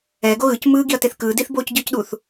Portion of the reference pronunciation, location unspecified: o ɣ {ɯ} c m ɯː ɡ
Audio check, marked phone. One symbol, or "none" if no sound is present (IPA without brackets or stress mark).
ɯ